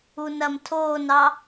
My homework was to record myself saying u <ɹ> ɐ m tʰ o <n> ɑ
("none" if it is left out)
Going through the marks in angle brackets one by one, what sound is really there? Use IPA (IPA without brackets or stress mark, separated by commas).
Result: n, n